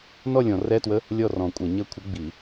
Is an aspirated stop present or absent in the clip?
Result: present